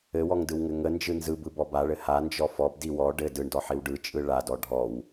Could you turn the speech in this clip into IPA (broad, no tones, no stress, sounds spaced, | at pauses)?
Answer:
ɘ w ɔ ŋ d ɯ w ŋ ɘ ŋ ə n d͡ʒ ɯ n z ɯ b ɯ b ɔ b a ɭ ɘ h a n d͡ʒ ɔ f ɔ b d i w ɔ ɖ ɘ d ɯ ɳ d ɔ ħ i w ɖ ɯ t͡ʃʼ ɯ ɭ a d ɔ ɖʱ ɔ w